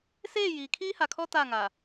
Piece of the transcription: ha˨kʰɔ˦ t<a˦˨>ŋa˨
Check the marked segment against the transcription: correct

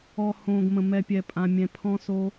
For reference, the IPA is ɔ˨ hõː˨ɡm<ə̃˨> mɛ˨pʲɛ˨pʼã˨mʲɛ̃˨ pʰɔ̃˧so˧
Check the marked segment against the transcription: correct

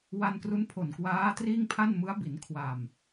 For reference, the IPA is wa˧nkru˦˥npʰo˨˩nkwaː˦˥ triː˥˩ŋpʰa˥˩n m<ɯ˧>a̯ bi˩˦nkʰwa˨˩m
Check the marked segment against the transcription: incorrect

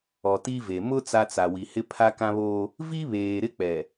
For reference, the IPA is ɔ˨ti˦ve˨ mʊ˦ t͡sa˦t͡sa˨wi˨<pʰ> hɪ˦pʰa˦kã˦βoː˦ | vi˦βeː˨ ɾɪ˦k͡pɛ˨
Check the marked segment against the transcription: incorrect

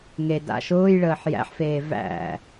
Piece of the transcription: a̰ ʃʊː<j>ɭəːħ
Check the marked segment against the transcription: correct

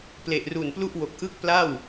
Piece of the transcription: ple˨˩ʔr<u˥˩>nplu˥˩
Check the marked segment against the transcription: incorrect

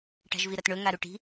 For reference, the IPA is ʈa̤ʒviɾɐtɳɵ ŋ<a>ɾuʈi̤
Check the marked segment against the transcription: correct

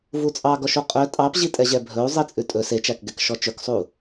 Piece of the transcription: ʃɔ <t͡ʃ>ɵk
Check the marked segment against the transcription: correct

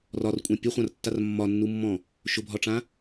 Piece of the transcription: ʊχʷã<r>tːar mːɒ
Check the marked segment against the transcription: correct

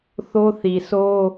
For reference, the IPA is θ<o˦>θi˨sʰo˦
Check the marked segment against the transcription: correct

